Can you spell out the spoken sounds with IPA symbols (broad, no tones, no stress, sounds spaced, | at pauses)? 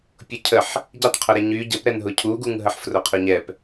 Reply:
pʲ ʊ cʰ ə ħ | ɟ i tˤ qʰ ʊ ɾ ɛ ɲ y ɟ ə p ɾ ɛ n ɦ ʊ cʰ u ɡ u ŋ ɦ ə ħ f r ʊ qʰ ʊ ɲ ɛ p